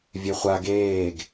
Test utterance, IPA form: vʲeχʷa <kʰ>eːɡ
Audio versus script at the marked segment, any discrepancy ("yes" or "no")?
yes